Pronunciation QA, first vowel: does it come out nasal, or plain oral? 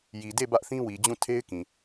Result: oral